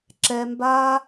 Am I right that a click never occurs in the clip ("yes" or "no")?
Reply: no